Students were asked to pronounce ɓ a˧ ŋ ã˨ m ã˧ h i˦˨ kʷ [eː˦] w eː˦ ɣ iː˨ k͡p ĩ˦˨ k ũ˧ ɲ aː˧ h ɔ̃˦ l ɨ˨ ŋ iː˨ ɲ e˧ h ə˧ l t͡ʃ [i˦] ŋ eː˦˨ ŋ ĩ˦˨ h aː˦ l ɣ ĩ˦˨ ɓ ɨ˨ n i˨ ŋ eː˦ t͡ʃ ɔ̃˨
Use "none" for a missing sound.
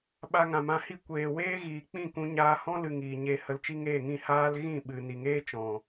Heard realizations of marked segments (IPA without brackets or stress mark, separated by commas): eː˨, i˦